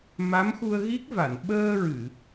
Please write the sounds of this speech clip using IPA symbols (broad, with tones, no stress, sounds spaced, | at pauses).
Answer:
m a˧˥ m x u˧ ə̯ ɣ i˦˥ k̚ v a˨˩˨ n ɓ əː˧ ɹ ɨ˨˩˨